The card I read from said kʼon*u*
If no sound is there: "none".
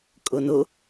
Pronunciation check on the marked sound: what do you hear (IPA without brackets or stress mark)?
o